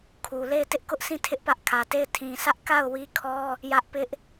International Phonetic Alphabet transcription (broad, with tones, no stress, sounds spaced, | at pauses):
kʰ u˨ l e˦˨ ɪ̯ t ɪ˦ ʔ k ʊ˦ ʔ sʰ ĩ˦˨ tʰ ɪ˦ ʔ p ä˦ ʔ kʰ ä˨ t e˦˨ ɪ̯ tʰ ĩ˨ s ä˦ ʔ k a˦˨ ʊ̯ w i˦ kʰ ɔ˦ | j ä˦ ʔ p ɪ˦ ʔ